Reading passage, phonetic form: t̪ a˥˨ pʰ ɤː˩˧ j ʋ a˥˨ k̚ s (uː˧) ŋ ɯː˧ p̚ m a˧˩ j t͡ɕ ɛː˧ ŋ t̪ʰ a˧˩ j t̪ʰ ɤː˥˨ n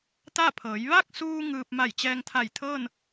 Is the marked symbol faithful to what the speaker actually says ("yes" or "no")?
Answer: yes